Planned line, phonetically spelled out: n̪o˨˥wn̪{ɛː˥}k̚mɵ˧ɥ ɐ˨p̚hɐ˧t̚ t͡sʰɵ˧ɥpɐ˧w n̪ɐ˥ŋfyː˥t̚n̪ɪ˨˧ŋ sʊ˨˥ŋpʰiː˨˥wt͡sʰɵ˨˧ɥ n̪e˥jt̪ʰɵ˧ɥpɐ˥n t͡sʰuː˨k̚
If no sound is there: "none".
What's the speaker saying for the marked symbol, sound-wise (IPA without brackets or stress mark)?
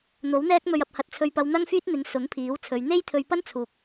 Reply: ɛː˥